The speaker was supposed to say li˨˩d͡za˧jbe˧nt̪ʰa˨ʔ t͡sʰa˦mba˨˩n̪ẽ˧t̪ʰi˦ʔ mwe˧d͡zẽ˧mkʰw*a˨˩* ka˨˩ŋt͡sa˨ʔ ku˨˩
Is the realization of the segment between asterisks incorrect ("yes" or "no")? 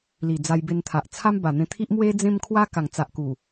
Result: yes